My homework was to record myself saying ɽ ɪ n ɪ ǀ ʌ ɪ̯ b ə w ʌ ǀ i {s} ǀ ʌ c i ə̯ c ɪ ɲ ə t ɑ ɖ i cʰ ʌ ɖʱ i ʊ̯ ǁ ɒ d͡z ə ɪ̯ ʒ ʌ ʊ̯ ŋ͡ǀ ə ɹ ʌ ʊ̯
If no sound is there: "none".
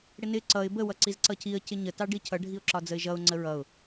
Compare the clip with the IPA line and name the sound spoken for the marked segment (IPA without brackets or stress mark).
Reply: z